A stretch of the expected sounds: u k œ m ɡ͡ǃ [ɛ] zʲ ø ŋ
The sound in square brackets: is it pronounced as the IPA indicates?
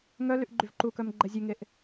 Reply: yes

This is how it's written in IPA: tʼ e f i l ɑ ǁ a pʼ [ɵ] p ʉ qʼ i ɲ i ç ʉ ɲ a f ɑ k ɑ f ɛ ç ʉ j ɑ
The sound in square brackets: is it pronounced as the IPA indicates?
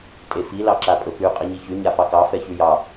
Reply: yes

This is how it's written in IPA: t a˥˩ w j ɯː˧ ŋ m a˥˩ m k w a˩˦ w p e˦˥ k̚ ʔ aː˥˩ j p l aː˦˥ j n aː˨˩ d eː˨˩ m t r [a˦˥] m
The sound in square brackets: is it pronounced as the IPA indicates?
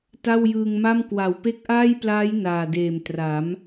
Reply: no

